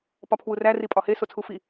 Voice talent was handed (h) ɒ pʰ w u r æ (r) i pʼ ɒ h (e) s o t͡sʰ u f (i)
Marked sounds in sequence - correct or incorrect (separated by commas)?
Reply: incorrect, correct, correct, correct